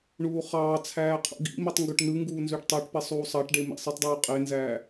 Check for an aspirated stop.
present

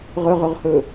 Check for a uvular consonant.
present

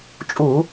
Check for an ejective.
present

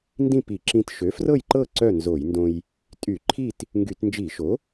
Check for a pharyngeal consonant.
absent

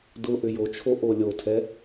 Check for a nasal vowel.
absent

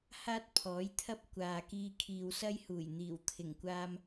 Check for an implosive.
absent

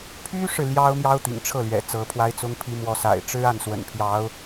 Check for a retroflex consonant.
present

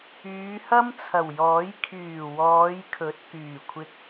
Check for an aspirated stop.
present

